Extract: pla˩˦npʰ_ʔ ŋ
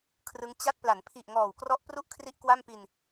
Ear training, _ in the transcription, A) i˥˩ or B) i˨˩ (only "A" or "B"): B